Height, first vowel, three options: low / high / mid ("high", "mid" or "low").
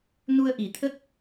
high